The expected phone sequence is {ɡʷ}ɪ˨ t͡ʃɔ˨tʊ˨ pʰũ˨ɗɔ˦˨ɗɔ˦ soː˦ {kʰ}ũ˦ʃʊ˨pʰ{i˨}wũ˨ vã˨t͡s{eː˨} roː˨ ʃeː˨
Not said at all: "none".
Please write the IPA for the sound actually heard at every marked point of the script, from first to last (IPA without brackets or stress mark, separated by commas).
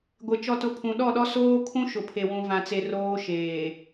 ɡʷ, kʰ, e˨, e˨